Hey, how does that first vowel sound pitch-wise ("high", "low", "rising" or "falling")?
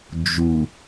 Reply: low